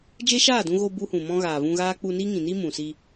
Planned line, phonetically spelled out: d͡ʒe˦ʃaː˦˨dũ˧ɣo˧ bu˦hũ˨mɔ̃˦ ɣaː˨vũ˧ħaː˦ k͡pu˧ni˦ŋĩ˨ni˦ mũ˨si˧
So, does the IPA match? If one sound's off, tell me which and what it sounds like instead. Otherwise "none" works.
ħ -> ɣ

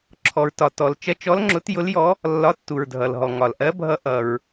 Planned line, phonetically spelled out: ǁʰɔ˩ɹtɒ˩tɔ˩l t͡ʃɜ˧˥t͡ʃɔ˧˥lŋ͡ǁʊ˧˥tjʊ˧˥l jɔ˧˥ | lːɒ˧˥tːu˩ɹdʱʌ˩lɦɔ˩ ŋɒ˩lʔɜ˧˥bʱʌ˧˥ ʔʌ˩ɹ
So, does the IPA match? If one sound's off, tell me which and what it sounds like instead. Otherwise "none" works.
none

